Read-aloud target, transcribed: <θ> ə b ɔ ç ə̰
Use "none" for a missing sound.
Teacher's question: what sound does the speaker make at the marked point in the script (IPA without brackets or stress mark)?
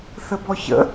θ